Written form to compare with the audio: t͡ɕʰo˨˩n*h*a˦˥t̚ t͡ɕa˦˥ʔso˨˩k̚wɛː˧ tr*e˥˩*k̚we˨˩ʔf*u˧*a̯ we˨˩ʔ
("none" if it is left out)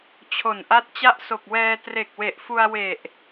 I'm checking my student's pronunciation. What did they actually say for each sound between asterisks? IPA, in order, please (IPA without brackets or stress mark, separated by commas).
ʔ, e˨˩, u˧